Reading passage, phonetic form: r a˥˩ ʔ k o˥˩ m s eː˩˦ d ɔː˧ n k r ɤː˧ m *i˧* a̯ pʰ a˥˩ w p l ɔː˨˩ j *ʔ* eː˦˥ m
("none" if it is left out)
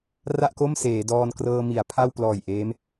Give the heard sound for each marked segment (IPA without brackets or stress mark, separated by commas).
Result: i˩˦, ʔ